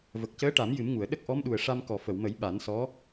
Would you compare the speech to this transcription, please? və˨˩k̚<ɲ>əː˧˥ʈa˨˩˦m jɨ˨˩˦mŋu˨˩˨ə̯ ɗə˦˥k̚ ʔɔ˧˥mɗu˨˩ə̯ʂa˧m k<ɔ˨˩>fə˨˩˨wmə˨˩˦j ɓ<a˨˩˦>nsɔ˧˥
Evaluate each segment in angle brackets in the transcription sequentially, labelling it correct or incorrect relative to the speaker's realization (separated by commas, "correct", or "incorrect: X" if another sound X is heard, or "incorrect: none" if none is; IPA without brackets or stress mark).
incorrect: c, correct, correct